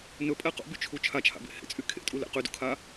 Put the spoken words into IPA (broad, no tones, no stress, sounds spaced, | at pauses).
n ɵ pʼ ɛ q ṵ b y t͡ʃʰ u t͡ʃʰ a t͡ʃʰ a̰ b ḛ h ḛ t͡sʼ y kʰ ḛ tʼ u l ḛ q y d ṵ kʰ a